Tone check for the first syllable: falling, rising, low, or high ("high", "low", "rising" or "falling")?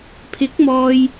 rising